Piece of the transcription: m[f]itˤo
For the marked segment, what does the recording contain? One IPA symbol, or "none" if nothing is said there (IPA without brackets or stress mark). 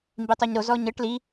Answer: b